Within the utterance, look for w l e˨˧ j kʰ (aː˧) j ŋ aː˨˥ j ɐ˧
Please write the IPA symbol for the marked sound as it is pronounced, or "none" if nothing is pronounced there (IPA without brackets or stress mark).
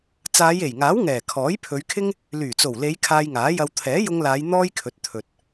aː˧